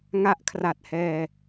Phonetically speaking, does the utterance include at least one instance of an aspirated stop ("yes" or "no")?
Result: yes